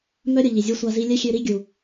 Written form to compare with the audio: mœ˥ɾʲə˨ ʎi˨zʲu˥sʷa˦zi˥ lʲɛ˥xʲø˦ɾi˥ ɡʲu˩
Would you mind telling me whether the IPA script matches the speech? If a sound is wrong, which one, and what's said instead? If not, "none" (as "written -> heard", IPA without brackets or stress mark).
none